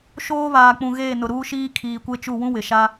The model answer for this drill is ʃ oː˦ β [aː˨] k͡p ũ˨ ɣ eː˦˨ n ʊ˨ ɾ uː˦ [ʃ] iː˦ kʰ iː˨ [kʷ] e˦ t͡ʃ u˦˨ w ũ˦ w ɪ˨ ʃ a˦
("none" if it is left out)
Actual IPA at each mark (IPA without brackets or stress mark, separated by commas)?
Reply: aː˨, ʃ, kʷ